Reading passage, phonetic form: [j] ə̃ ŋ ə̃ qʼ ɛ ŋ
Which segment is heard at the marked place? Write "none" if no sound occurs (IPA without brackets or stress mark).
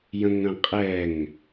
j